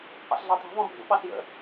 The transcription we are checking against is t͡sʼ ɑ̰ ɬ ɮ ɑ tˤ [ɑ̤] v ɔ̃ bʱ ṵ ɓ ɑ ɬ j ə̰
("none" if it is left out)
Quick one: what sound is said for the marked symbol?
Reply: ɑ̤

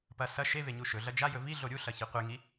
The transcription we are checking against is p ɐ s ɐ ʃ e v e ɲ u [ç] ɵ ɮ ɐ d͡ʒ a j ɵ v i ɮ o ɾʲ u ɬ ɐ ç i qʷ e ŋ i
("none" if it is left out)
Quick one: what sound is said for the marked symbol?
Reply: ʃ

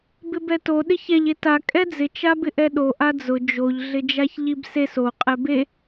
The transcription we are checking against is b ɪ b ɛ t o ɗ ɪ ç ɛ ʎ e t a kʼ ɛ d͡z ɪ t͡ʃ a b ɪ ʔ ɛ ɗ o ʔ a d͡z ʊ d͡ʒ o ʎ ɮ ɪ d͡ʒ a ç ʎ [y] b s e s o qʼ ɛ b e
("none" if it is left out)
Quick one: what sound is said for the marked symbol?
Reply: i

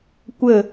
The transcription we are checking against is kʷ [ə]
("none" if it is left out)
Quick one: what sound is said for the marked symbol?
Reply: ə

